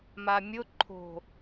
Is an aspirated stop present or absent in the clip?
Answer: present